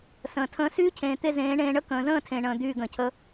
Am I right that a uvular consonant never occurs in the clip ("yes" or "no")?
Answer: yes